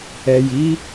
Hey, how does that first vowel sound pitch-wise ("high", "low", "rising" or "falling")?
low